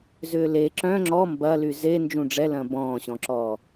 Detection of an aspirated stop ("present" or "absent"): absent